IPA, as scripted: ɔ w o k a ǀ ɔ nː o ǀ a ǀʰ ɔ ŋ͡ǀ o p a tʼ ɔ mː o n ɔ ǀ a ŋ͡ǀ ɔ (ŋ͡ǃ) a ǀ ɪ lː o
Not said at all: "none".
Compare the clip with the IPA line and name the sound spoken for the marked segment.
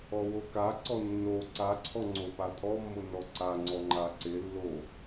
ŋ͡ǃ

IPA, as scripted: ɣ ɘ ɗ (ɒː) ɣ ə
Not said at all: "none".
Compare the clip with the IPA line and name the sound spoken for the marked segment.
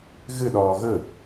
ɒː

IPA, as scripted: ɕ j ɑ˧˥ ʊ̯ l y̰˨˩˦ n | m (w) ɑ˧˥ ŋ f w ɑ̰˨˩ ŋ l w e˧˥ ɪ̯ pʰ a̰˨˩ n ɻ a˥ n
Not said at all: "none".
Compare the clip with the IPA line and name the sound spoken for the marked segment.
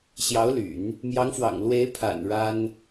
j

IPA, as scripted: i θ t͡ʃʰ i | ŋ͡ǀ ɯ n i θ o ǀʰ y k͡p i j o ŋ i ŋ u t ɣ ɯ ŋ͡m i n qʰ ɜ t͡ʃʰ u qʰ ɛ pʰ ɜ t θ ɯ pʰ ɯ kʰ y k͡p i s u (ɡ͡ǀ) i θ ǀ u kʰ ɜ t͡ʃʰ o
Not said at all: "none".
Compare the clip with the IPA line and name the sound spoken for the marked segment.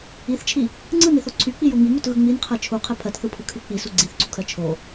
ɡ͡ǀ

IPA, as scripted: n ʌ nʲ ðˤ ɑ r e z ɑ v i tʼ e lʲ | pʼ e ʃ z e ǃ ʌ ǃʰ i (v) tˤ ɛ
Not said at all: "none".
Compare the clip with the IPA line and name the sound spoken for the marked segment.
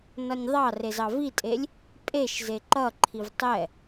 v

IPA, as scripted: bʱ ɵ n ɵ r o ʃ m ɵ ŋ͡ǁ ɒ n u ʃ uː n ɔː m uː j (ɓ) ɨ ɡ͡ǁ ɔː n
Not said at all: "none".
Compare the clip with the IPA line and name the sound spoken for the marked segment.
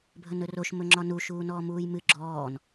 m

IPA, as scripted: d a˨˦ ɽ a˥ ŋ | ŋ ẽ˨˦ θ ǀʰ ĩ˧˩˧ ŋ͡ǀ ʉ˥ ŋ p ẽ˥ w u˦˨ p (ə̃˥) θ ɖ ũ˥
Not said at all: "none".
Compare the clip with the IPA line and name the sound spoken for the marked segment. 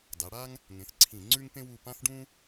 ã˥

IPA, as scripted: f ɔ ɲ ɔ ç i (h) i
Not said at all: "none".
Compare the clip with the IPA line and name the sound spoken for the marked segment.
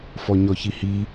h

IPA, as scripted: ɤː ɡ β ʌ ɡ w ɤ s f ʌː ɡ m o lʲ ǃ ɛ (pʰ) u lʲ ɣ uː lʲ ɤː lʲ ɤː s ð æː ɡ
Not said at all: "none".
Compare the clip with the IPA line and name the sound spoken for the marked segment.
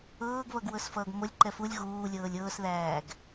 f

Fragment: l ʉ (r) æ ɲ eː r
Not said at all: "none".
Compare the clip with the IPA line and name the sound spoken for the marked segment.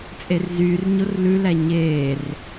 l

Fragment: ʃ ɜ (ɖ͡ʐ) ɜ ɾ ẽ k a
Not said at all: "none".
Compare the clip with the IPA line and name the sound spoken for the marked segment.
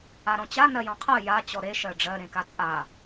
ɖ͡ʐ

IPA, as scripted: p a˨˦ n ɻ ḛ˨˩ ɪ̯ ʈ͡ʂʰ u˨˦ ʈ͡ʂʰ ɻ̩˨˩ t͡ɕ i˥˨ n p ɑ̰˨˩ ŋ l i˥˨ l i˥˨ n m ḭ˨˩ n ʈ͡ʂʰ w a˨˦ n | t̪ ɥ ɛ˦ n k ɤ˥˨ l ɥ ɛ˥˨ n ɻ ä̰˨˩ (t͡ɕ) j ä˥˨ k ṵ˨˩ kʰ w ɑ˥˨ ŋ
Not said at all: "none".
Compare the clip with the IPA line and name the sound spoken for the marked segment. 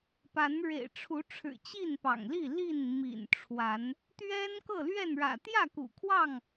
t̪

